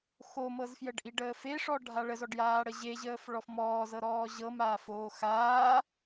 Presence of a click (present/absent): absent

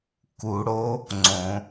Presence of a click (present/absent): present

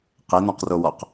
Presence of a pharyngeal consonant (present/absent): absent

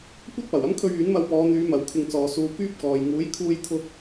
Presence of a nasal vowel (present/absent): absent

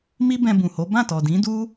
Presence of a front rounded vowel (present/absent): absent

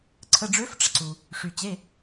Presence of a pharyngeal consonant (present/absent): absent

